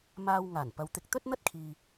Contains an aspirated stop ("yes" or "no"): yes